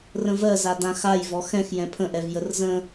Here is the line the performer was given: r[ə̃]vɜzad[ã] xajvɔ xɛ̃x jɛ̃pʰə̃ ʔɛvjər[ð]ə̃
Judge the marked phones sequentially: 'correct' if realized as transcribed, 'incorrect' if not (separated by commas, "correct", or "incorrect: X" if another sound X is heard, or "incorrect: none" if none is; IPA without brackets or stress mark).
correct, correct, incorrect: z